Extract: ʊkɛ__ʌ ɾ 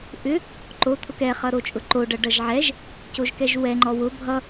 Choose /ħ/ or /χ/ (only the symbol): χ